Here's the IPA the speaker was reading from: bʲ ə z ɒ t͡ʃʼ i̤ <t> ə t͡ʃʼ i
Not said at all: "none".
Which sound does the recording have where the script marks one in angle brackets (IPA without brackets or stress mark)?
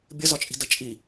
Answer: d